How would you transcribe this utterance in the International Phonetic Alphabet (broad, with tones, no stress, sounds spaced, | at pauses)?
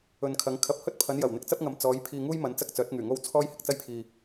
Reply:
ɵ˨ n kʰ ɐ˨˧ ŋ kʰ ɐ˨˥ p̚ h ɵ˥ t̚ pʰ ɐ˨˧ n j ɐ˨˩ w n̪ ɪ˨ k̚ t͡s ɐ˥ p̚ ŋ ɐ˨˧ m t͡s ɔː˨˧ j pʰ iː˧ ŋ uː˥ j m ɐ˨˧ n t͡s ɐ˥ k̚ t͡s œː˨˥ t̚ ŋ yː˨˩ ŋ o˥ w t͡sʰ ɔː˥ j h ɪ˧ k̚ t͡s ɐ˥ j pʰ iː˨